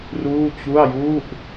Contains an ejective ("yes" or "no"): no